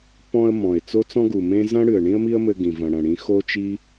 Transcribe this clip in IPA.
p ɔ̃˧ ə̯ m ɔ̃˨ ɪ̯ t͡s o˦ t͡s ɔ̃˦ ɡ u˨ m ẽ˦ z ɐ̃˦ ɽ ɨ˨ ə̯ ɳ ĩ˦ ə̯ m i˦ ə̯ m ɘ˧ ɡ ĩ˨ v ɐ̃˧ ɽ ɐ̃˧ ɽ ĩ˦ x o˦ t͡ʃ i˦

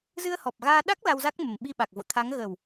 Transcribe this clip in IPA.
z ɨ˧ ə̯ h ɔ˨˩ p̚ ɣ aː˧ ɗ a˦˥ k̚ l a˧ w z a˦˥ k̚ m ə˨˩ m ɓ i˧ ɓ a˨˩ k̚ v o̰˧˨ t̪ʰ a˨˦ ŋ ɣ ə˨˩ w

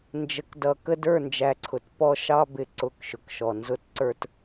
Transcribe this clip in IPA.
n d͡ʒ ə˨ k d ʌ˨ k ə˦ d ə˞˦˨ n d͡ʒ æ˨ ǀʰ ʊ˨ t p ɔ˦ ʃ ɑ˦ b ɪ˨ ǀ ʊ˦˨ k ʃ ʊ˨ k ʃ ɔ˨ n z ʊ˦ t ǀ ə˞˦ t

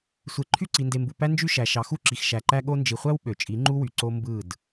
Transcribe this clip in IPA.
sʷ e˨ ǃʰ y˦˨ ǀ i˨ n d e˨ m b u˨ p æ˦ n d͡ʒ y˦ ʃ æ˨ ʃ ɑ˨ x u˦˨ ǁ i˨ x ʃ æ˨ ǃ æ˦ ɠ o˦ n d͡ʒ i˨ χʷ æ˦ w ɓ ø˨ t͡ʃʼ i˨˦ ŋ͡ǃ u˦ w y˨ ǀ o˦ m b ɯ˦˨ d

